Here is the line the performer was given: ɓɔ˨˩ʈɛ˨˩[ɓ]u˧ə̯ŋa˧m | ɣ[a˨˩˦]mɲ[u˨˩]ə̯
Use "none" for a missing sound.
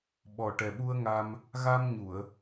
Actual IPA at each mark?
ɓ, a˧, u˨˩˨

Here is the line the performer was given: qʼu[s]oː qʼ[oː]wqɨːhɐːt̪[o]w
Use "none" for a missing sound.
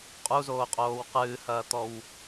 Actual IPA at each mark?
z, oː, ɔ

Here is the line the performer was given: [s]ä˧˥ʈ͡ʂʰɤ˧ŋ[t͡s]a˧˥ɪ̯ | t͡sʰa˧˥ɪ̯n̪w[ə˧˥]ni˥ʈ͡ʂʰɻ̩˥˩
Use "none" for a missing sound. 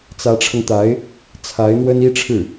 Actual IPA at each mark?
t͡s, t̪, ə˥

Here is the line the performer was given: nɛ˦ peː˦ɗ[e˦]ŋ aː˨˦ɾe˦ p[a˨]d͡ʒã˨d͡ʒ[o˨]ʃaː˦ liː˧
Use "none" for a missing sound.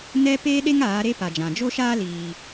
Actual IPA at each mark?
e˦, a˨, o˦

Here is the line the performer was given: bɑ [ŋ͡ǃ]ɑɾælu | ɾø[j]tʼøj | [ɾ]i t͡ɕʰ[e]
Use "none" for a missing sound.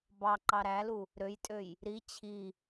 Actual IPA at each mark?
ǃ, j, ɾ, i

